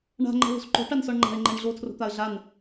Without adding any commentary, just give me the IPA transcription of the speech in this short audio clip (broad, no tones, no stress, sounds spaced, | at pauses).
ɳ a̤ ŋ͡ǃ ɛ̤ l o̤ s ǃ o̤ ʈ a n s ɔ ɳ ŋ͡ǃ a̤ ɪ̯ ŋ͡ǃ ɛ ɳ ɮ o tʰ r o̤ t̪ a ə̯ ɮ a n